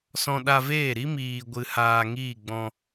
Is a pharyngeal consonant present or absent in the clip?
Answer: absent